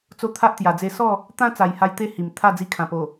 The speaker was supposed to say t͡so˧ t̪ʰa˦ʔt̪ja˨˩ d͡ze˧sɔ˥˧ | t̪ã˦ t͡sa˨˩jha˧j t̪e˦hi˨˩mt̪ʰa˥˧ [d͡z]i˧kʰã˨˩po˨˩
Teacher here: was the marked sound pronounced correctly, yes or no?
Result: yes